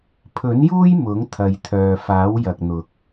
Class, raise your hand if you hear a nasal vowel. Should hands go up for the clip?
no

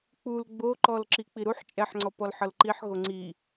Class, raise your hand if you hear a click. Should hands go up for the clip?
yes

